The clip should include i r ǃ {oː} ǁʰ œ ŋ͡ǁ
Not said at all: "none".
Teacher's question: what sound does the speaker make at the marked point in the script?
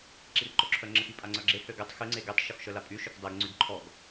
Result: o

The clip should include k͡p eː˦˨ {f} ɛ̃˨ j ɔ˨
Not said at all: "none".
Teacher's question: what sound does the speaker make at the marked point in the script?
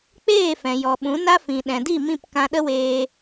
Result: f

